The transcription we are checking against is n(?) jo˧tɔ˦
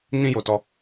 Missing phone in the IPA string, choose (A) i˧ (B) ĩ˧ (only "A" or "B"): B